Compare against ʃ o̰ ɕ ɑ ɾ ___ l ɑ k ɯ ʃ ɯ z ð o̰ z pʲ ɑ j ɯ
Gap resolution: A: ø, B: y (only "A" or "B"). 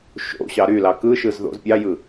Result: B